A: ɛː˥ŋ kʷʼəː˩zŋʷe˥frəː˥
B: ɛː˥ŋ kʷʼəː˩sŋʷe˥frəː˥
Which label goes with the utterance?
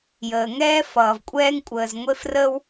A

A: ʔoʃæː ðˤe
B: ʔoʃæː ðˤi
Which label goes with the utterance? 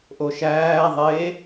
A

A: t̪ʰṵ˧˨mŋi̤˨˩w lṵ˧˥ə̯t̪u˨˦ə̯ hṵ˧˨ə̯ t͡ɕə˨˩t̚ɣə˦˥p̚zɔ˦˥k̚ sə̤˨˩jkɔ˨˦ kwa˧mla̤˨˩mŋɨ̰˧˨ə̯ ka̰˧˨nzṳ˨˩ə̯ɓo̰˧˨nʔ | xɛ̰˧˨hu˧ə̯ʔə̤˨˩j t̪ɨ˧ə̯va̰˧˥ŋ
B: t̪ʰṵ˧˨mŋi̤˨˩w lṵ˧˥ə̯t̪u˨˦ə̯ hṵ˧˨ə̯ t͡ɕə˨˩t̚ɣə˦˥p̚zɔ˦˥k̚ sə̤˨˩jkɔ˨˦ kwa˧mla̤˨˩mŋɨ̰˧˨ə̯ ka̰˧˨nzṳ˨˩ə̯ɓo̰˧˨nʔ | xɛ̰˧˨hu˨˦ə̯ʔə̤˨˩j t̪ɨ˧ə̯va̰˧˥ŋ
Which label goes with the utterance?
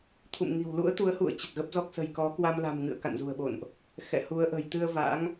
B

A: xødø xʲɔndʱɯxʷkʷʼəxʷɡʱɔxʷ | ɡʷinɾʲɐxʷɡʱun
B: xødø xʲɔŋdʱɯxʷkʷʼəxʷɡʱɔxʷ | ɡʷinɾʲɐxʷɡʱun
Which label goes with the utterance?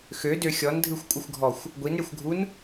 A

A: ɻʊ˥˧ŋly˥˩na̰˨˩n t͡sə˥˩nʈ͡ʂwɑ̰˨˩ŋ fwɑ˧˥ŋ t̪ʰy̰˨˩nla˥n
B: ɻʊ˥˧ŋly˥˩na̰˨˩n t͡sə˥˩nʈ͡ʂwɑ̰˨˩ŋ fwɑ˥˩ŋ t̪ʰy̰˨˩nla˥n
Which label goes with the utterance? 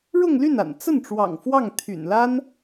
B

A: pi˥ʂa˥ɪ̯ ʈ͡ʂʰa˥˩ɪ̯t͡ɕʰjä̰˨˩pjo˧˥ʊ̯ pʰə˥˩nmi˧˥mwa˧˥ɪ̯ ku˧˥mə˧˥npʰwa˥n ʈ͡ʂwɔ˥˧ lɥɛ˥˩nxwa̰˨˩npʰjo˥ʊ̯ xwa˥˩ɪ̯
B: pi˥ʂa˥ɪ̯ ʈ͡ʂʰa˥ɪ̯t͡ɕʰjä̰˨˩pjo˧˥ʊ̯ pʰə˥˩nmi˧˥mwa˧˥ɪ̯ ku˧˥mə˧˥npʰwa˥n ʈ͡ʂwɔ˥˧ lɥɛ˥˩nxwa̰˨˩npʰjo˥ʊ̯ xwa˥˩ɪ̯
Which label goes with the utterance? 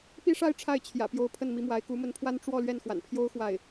A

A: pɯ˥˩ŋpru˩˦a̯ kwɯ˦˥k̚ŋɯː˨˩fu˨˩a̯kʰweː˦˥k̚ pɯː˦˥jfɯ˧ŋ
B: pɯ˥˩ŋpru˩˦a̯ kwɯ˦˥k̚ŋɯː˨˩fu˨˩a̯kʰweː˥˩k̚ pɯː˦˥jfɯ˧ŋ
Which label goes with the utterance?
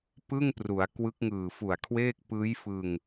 B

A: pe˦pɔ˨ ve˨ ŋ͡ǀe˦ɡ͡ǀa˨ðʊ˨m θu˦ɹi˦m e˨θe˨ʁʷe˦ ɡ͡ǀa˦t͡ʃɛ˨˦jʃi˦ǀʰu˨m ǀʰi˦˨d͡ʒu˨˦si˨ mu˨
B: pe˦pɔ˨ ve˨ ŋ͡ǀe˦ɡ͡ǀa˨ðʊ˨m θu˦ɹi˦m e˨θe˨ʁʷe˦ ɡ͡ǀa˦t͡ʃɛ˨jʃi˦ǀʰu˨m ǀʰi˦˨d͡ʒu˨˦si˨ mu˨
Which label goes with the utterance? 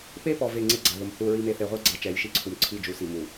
A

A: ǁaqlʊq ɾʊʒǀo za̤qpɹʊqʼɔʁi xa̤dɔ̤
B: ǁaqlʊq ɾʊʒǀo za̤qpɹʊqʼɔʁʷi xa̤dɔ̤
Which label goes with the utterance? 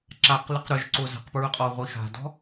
B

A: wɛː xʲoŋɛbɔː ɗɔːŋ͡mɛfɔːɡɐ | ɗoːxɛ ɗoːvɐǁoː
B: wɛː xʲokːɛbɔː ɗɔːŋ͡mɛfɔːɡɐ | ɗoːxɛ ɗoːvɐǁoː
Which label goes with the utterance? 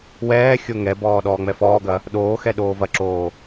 A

